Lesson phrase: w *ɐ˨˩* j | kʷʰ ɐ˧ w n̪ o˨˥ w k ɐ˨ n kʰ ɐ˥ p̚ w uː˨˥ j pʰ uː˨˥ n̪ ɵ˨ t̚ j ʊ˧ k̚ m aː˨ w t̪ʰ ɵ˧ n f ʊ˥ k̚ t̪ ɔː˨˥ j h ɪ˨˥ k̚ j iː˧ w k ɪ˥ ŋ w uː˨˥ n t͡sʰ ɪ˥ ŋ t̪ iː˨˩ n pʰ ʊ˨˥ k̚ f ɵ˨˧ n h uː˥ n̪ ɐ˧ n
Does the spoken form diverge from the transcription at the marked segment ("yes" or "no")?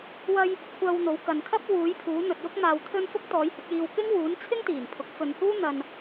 yes